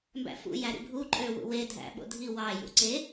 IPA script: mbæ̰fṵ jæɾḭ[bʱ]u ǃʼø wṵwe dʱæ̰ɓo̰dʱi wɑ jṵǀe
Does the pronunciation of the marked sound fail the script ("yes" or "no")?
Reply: no